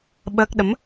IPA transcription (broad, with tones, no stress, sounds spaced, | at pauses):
ɓ əː˦˥ k̚ ɗ ə˨˦ m